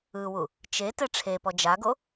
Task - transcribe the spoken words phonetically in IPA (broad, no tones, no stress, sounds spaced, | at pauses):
ɯ w u | t͡ʃ e t ɛ ʈ͡ʂʰ e p ɔ d͡ʒ a ɡ o